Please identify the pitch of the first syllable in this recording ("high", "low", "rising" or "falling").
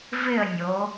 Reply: falling